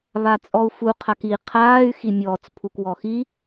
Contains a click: no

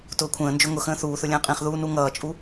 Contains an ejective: yes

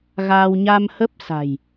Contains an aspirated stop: no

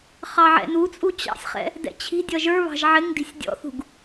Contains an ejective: yes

